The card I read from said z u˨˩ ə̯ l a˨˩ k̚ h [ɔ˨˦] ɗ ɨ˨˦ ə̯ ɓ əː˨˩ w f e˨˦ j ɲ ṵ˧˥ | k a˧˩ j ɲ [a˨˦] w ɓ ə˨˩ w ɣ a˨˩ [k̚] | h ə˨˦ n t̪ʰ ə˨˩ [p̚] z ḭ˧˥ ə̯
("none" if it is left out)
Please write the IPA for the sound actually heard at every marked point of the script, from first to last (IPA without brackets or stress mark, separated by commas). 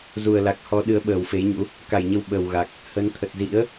ɔ˨˦, ə˨˦, k̚, t̚